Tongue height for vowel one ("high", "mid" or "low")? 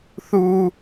high